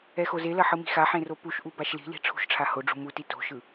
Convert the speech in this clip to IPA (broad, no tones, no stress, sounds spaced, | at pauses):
ɛ x o z e l ɐ ħ ɯ m i̤ x a ħ ẽ r o p u ʃ ʔ u b a ʃ l i̤ l i̤ ʈ͡ʂʰ ṳ ʃ ʈ͡ʂʰ a h o ɖ͡ʐ ṳ m u t i t o̤ ʃ ɯ